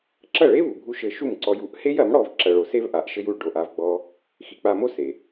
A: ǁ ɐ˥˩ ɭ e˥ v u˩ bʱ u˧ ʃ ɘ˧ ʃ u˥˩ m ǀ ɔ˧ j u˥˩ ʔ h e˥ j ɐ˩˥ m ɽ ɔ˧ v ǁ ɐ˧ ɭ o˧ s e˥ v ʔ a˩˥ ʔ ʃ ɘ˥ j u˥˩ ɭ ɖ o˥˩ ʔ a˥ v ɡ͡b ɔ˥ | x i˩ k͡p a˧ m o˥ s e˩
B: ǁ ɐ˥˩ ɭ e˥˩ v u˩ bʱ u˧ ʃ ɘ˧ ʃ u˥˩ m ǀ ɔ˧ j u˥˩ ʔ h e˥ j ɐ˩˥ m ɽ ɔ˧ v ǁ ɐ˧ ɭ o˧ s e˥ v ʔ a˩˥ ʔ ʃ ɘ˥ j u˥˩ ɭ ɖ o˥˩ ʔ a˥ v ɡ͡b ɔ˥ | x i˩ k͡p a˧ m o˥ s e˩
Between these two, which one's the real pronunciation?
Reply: A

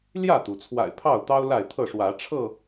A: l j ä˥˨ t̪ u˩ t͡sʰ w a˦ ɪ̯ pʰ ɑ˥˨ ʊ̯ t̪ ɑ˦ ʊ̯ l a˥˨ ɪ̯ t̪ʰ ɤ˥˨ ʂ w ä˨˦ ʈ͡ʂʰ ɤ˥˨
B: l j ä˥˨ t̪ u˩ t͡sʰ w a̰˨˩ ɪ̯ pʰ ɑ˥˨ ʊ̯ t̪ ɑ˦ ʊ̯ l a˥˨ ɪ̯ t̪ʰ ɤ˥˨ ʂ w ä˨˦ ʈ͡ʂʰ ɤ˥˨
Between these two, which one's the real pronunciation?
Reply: B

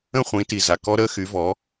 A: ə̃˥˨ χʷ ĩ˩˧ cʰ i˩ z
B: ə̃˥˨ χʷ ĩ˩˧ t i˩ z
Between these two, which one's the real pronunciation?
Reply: B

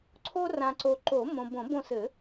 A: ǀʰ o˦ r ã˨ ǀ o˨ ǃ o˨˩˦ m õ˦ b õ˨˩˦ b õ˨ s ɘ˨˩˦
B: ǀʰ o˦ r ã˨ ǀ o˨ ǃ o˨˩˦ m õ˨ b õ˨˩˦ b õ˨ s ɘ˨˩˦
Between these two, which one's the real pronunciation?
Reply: B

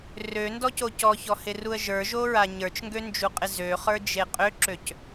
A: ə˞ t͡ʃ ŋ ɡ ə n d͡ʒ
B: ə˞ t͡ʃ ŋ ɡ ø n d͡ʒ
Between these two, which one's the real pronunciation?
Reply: B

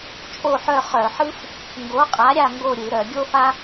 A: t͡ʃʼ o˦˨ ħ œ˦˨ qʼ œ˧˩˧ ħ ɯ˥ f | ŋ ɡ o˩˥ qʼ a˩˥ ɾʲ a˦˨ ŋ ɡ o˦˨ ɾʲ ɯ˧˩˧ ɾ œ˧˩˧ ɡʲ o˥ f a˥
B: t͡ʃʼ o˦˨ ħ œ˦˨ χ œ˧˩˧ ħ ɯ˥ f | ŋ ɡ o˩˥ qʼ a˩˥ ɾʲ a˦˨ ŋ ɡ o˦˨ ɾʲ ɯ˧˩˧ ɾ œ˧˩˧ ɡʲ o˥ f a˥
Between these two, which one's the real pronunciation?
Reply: B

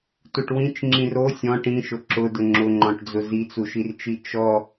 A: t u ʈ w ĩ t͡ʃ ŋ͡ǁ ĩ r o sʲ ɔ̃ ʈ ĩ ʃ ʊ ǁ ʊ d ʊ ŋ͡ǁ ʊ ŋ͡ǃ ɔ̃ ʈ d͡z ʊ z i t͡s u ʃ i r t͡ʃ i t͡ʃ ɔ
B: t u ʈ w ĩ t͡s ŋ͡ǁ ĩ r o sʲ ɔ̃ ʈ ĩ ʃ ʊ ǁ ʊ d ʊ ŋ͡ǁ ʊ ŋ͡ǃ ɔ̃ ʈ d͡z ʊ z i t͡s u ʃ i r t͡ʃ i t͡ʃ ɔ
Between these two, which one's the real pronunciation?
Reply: A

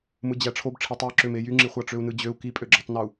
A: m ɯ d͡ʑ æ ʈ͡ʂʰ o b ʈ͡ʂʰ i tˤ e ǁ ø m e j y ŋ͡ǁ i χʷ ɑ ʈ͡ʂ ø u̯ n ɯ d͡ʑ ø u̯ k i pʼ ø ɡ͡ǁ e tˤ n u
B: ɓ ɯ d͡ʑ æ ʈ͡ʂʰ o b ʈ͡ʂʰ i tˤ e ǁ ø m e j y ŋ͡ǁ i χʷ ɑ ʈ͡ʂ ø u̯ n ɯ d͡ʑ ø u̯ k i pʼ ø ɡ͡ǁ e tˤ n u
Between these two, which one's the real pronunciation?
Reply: A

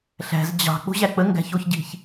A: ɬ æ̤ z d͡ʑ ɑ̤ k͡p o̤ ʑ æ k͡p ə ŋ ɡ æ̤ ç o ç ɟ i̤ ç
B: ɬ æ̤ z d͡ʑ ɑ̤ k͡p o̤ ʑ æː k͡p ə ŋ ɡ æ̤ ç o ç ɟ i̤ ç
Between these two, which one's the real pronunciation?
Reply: A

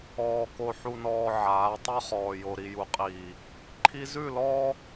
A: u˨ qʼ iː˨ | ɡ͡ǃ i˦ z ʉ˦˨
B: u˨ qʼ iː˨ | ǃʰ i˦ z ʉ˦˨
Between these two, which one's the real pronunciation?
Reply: B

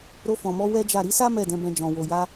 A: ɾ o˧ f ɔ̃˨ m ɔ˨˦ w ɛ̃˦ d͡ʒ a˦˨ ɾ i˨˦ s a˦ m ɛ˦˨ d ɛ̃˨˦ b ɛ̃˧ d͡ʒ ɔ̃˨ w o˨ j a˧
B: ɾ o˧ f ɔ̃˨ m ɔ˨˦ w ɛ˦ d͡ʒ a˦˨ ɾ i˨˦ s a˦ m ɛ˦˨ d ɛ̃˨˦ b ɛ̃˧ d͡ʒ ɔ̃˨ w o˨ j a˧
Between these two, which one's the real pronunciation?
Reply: B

